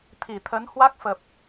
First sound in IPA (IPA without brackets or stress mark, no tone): t̪ʰ